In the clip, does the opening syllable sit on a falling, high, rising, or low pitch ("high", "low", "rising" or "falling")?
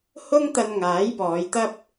high